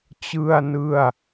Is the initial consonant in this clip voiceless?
yes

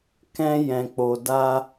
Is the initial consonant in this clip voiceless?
yes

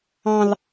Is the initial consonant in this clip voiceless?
no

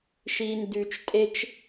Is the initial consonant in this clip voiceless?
yes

